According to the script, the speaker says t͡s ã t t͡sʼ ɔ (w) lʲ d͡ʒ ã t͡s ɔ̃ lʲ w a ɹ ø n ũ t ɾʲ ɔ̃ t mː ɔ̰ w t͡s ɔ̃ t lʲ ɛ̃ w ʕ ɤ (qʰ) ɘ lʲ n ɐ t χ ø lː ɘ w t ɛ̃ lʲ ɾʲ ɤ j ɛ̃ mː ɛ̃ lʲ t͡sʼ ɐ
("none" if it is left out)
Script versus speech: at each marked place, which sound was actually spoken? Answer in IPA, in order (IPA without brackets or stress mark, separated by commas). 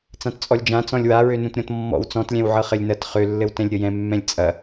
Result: none, χ